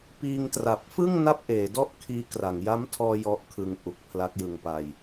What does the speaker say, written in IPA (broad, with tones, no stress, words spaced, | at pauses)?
piː˧ŋtra˨˩p̚fɯ˥˩ŋ na˥˩p̚ʔeː˩˦dɔ˥˩ʔ kʰiː˦˥kra˩˦ŋ ja˦˥mtʰɔː˧ jɔ˦˥ʔkʰɯ˧ŋʔu˨˩k̚ pʰla˦˥k̚jɯ˧ŋpa˧j